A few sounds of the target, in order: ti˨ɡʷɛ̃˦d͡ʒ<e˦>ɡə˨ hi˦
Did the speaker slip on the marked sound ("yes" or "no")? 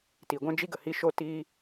yes